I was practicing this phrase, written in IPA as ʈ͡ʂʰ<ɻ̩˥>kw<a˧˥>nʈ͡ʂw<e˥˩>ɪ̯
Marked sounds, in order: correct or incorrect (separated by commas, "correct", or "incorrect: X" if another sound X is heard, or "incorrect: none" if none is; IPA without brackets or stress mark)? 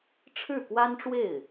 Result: incorrect: ɻ̩˥˩, incorrect: a˥, correct